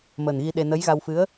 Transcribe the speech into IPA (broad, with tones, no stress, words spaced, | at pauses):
məː˨˩nɣi˧ɗe˧ nə˧˥jɣa˧wfɨ˧˥ə̯